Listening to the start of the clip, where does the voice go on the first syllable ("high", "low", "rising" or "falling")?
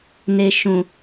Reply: low